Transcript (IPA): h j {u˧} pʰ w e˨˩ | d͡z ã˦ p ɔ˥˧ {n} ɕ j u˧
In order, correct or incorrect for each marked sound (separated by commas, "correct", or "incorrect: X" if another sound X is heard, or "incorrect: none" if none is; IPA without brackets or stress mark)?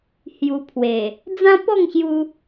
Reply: correct, incorrect: ŋ